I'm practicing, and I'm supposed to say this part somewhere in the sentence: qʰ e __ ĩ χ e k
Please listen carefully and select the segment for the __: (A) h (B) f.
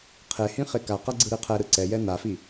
A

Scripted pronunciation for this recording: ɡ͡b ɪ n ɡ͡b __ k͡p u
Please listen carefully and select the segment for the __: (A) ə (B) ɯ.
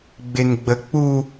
A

